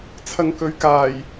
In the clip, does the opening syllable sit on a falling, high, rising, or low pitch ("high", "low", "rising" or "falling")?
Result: low